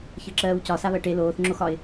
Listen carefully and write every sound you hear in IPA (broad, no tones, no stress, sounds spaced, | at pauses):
ç ɜ ǁ ɜː w c ɒ s a β ɜ ʈ e l oː θ ŋ͡ǁ o x ɒ ɪ̯